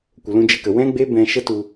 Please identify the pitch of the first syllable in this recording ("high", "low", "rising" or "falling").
low